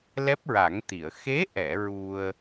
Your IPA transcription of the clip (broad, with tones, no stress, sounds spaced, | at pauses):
l ɛ˦˥ p̚ ɹ a˨˩˦ ŋ t̪ i˨˩˨ ə̯ x e˧˥ ʔ ɛ˨˩˨ ɹ u˧ ə̯